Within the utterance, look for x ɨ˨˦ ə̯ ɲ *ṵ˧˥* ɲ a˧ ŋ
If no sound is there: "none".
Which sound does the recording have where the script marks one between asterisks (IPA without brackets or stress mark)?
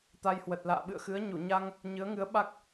u˧˩